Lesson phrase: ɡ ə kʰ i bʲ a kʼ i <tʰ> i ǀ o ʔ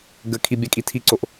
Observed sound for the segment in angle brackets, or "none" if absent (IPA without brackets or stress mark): tʰ